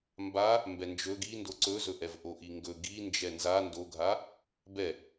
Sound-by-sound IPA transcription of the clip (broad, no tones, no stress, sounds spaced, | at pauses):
m b a | m b ɛ n d͡ʒ ɵ ɡ i n d o ǀ ɵ z ɵ ʔ ɛ v ʔ o ʔ i ŋ ɡ ɵ ɡ i n d͡ʒ ɛ n z a n d o ɡʱ a | b ɛ